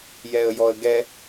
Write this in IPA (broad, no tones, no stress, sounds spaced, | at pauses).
j ɛ ə̯ j ɔ ə̯ ɡ ɛ